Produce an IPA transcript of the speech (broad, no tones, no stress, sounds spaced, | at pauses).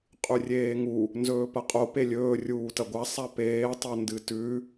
qʼ ʉ rʲ eː ŋ u | n z ɵː p ɐ qʼ o p e lʲ ɵː rʲ uː t ɐ ɡʷ a sˤ a p eː tˤ o n d ɨ t ʉ